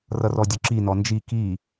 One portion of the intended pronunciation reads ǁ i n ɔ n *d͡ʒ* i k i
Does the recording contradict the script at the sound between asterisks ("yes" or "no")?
no